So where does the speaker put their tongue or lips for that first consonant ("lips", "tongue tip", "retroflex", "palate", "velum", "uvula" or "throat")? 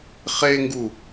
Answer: uvula